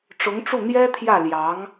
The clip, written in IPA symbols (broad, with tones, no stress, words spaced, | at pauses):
ʈ͡ʂʊ˧˥ŋʈ͡ʂu˥˩n̪jɛ˥t̪ʰjä˥˩ ljɑ˧˥ŋ